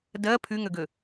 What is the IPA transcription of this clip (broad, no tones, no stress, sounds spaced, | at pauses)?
d ɜ pʰ y ŋ ø ɡ ø